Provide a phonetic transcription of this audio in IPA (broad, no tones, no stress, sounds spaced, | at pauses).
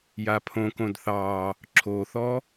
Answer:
j a pʰ õ k õ d θ ɑ | ǁʰ o θ ɔ